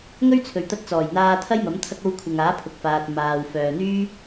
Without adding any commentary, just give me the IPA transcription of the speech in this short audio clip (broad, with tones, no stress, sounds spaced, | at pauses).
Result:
ŋ ɵ˥ ɥ t͡sʰ ɵ˨ ɥ t̪ ɐ˧ t̚ t͡s ɔː˨˩ j n̪ aː˧ t̪ʰ ɐ˥ j m ɐ˨˥ m t̪ʰ ɐ˧ k̚ o˧ w kʷʰ ɐ˨ ŋ aː˨˥ pʰ ʊ˨ k̚ f aː˨ t̚ m aː˨ w f œː˨ n̪ yː˥